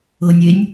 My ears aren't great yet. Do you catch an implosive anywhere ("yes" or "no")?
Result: no